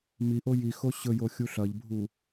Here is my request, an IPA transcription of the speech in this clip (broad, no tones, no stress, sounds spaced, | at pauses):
m i ʔ o j i x o ɕ ɵ j o xʲ u ɬ ɐ ʎ bʱ u